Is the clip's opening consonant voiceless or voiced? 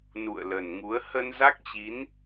voiced